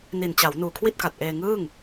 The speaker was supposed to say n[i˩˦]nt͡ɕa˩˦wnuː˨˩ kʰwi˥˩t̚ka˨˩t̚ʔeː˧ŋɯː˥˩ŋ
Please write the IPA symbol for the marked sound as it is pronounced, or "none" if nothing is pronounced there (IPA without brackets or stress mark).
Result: i˨˩